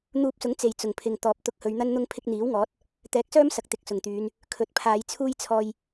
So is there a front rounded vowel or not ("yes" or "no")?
yes